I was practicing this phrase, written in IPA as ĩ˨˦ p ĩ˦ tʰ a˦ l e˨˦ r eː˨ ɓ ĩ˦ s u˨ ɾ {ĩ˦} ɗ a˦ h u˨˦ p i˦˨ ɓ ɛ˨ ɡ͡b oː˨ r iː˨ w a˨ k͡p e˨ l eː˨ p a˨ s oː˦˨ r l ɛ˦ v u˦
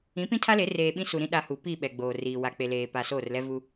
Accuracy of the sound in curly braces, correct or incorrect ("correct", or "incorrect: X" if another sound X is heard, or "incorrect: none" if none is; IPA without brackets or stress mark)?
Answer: correct